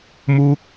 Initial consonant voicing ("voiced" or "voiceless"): voiced